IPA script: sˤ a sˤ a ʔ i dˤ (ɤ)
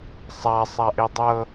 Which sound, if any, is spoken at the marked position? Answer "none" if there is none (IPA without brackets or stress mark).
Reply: ɤ